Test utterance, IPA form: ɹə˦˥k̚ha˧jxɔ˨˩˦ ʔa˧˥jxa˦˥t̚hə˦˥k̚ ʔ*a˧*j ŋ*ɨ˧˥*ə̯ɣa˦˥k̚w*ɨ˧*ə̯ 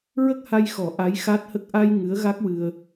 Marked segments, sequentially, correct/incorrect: correct, correct, correct

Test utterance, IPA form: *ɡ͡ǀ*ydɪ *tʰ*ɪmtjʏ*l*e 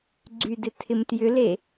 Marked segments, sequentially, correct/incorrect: correct, correct, correct

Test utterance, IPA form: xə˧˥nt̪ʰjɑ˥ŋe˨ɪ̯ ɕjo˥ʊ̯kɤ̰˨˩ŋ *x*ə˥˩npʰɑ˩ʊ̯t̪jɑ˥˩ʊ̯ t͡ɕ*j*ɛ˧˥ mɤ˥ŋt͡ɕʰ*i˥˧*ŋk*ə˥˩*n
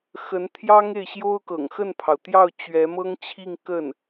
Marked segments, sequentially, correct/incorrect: correct, incorrect, correct, correct

